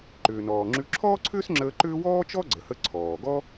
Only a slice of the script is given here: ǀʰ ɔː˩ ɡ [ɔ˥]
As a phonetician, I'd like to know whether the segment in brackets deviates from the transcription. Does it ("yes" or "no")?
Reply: no